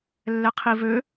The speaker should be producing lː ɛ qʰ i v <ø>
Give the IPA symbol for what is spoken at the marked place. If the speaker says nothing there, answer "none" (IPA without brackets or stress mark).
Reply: ø